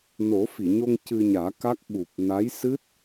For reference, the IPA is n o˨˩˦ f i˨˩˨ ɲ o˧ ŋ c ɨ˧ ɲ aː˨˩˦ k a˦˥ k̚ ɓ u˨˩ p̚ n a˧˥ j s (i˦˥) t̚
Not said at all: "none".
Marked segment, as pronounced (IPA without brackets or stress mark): ɨ˦˥